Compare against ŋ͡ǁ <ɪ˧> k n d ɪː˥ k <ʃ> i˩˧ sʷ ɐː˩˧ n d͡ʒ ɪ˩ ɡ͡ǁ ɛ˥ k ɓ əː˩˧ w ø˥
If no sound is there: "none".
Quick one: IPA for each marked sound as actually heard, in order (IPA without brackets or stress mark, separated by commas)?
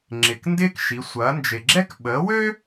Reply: ɪ˩, ʃ